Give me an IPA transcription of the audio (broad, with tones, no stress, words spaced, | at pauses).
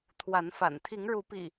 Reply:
t̪ʰwa˨˦nfa̰˨˩n t̪ʰi˨˦ŋɻu˨˦pḭ˨˩